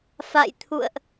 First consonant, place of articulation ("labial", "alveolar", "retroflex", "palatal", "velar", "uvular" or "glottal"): labial